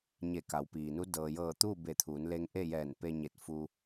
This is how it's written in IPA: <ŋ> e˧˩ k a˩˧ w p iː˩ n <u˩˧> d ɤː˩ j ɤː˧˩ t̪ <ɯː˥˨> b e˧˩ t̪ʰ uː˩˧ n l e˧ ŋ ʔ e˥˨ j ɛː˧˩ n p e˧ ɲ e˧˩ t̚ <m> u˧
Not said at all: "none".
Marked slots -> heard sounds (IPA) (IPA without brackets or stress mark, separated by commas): ɲ, u˧˥, uː˥˨, f